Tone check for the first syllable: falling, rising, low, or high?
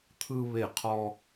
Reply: high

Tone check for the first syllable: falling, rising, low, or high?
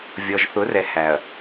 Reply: low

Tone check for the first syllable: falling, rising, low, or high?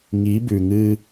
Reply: rising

